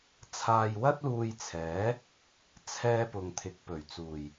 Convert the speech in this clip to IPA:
t͡sʰaː˧jwɐ˥t̚luː˧jt͡sʰɛː˨˥ | t͡sʰɛː˥ pʊ˨ŋt̪ʰɪ˨˥k̚ pɵ˨˩ɥt͡suː˨˩j

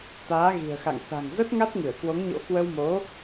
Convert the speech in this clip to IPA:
t̪aː˨˦ɣi̤˨˩ə̯xa̰˧˨ŋ sa̤˨˩ŋzə˦˥t̚ ŋa˦˥t̚ŋɨ˧˩ə̯kwo˨˦ŋɲo̰˧˥ kwə˧wmo˨˦

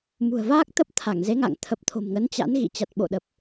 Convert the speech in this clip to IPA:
mṳ˨˩ə̯vaː˦˥k̚ t̪ə˦˥p̚ t̪ʰa˧˩ŋ ze˨˦ŋa̰˧˨ŋ t̪ʰə˨˩p̚t̪ʰo̤˨˩mŋə˨˦n t͡ɕa̰˧˥n ɣḭ˧˨t͡ɕa˨˩t̚ɓo̰˧˨ɗə˨˩p̚

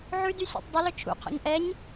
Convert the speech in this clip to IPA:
ʕʉdysʲɔ̰tˤ dˤylɵ t͡ʃʰṵqʰɔ̰ɲ ʔɛɲ

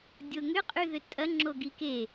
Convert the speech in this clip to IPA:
dʲoŋʏqʼy ðʏtʼɐŋ͡ǁo ɡike

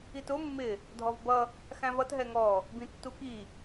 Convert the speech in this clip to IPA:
itʊ mːɪ | dʱɔvbʌ | xæ̃vʌt ɦɛŋɔ | bĩtːuki

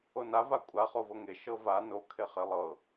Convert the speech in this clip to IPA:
ona vakʷʼa χovɤŋe ʃɤva no kʰeχelˠɤ

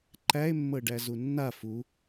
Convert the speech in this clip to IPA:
ǃæe̯mːɤɖæ zunːa fu

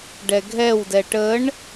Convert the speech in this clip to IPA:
ɖɛɡʱɛwdɛ ʈəɳ

